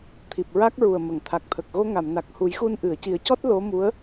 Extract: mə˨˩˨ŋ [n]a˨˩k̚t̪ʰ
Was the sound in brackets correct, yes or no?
no